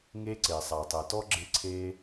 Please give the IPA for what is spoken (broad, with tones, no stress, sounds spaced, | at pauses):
ŋ e˥ ǀ e˩ sˤ a˩ tˤ ɛ˩ t ɔ˥ ɡ͡ǁ ɪ˥ ǀʰ e˥